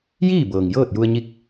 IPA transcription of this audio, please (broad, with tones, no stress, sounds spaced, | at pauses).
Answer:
j iː˥˨ b ɤː˩ ŋ j ɤː˥˨ t̚ j u˧ ə̯ ɲ i˧˥ k̚